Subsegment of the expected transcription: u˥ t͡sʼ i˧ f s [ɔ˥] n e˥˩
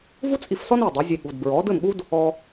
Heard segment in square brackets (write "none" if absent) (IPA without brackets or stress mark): ɔ˥